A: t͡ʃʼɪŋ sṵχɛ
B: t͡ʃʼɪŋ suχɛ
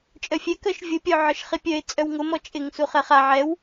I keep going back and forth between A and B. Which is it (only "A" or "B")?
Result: B